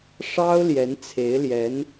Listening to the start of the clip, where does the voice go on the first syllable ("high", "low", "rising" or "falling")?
high